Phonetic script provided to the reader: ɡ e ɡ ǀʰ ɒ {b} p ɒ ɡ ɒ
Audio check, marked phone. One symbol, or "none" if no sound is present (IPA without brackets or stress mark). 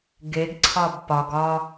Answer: b